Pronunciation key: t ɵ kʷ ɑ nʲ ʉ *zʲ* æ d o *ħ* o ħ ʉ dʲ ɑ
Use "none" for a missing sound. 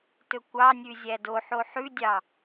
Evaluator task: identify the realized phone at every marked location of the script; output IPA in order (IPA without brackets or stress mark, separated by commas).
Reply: zʲ, ħ